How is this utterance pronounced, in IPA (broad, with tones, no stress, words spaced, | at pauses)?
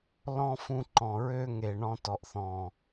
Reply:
lɔ̃˦fũ˧ ǃɔ̃˨ɹø˦ ŋe˨ ɳɔ̃˧tɔ˨ʔ θɔ̃˨